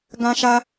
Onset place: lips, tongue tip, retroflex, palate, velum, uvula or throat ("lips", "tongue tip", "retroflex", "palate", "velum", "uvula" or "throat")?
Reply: velum